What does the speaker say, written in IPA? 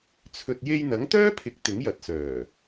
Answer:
t͡sʰ ɵ˨ t̚ j e˧ j n̪ ɐ˨˥ ŋ t̪ œː˥ pʰ ɪ˨ k̚ t̪ ɪ˨˥ ŋ j ɐ˨˥ t̚ s œː˨˩

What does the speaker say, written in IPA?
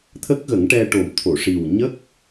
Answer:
t̪ʰ ə˦˥ k̚ ɣ ə˨˩˦ ŋ ʈ ɛ˧ ʈ o˨˩ m t̪ʰ o˨˩˨ ʂ i˨˩ w ɲ ə˦˥ k̚

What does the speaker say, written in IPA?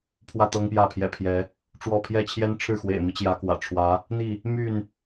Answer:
pʰ w ä˥˨ t̪ ɤ˦ ŋ p j ä˥˨ pʰ j ɛ̰˨˩ pʰ j ɛ˨˦ | ʈ͡ʂ w ɔ˥˨ pʰ j ɛ˦ t͡ɕʰ j ɛ˦ n ʈ͡ʂʰ ɻ̩˥˨ x w ḛ˨˩ ɪ̯ m i˦ t͡ɕ j ä˨˦ k w ä̰˨˩ ʈ͡ʂʰ w ä˨˦ | n̪ i˥˨ | m y˥˨ n

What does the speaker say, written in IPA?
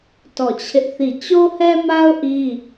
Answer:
t ɔ˦˨ t͡ɕʰ ɪ˦ ʔ θ i˦˨ t͡ɕ o˦ h ɛ˦ m a˦ ʊ̯ ʔ i˦

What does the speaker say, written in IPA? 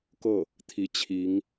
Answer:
k ɤ˥˩ | t̪ʰ i˧˥ t͡ɕʰ i˧˥ ŋ

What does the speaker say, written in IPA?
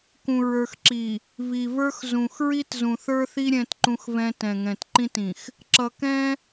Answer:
k ũ˨ ɹ ə˞˨ x ǁ i˨ | v i˨ v ə˞˦ x z ũ˨ x ɹ i˦ t z ũ˨ θ ə˞˦ θ i˦ ɾʲ ɛ̃˦ t ǃ ũ˦ x v ɛ̃˦ t ɛ̃˨ ŋ ɛ̃˨ t ǃ ĩ˦ t ĩ˨ x | ǁ ʌ˨ k ɛ̃˦

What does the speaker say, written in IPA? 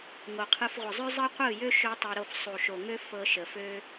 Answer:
ŋ o˨ qʰ ɯ˧ f ʁʷ ə˨ zˤ ø˦ zˤ ɯ˦ qʷ ɯ˦˨ j ø˦ ʃ ø˦ tˤ ɤ˧ ɾ o˦˨ f sˤ u˨ ʃ o˨ ŋ ø˦ f ɤ˧ ʃ ə˨ f ø˦

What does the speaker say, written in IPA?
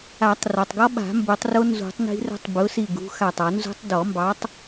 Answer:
a˨˩˦ tˤ r ɒ˩ tˤ ɡ ɔ˦˥ ɓ a̤˨˩˦ m b o˨˩˦ tˤ r o˦˥ n z ṳ˨˩˦ tˤ n i̤˦˥ r ə̤˦˥ tˤ b ʊ˨˥ s i˧˩ ɡ ṳ˨˥ x a˧˩ tˤ ɒ˨˩˦ n z ṳ˦˥ tˤ d ɔ˨˩˦ m b ɑ˨˥ tˤ

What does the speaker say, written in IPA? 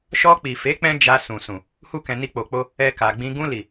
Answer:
ʃ ɔ˧ k͡p i˨ f e˨˦ k͡p ɛ̃˧ d͡ʒ a˧ s ũ˨ s ũ˨ | h u˧ k ɛ̃˨ n i˧ k͡p o˨ k͡p o˧ | ɛ˧ k a˨ ɡ͡b ĩ˧ ɡ ũ˧ l i˨

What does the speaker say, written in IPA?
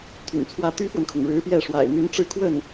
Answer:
t̪ʰ y̰˨˩ n t͡sʰ w ä˥˩ t̪ y˥ f w ə˨ n kʰ ʊ˩ ŋ ɻ ɻ̩˧˥ p j ɛ˥˩ ʂ w a̰˨˩ ɪ̯ n̪ y˧˥ n ʈ͡ʂ ɻ̩˥˧ kʰ w ə˥˩ n

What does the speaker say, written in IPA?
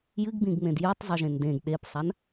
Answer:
j ɨ ɡ b ĩ ɡ ŋ͡m ẽ d j ʉ tˤ zˤ u ʒ ẽ n d ẽ ɡ ɗ e p sˤ a n

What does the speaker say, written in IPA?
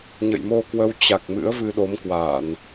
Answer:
ɲ ə̰˧˨ j m o˧ k w ə˧ w t͡ɕ a˨˩ k̚ m ɨ̰˧˥ ə̯ v ɨ˧ ɗ o˨˦ m k w a˧˩˨ n

